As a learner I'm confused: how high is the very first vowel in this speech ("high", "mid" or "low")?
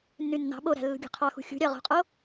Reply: high